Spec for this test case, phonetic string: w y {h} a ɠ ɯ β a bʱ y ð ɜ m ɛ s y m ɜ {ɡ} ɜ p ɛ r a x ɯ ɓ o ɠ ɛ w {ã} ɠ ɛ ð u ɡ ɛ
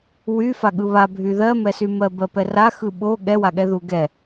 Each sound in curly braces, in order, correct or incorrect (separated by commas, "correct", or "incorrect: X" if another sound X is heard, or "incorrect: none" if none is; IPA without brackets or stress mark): incorrect: f, incorrect: b, incorrect: a